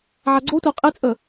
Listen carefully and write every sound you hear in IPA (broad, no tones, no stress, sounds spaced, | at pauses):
ʕ a ɡ͡ǀ o tʷ a qʼ e t͡sʼ ə